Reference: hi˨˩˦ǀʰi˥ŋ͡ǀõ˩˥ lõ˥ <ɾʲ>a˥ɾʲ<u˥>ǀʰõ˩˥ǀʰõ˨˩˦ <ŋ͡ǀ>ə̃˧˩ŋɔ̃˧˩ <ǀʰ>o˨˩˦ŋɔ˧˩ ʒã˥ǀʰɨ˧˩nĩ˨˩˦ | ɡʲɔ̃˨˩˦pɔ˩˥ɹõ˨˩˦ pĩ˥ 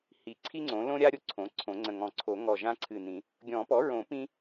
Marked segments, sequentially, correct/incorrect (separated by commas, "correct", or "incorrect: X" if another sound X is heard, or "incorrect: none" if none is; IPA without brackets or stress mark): correct, incorrect: o˥, correct, correct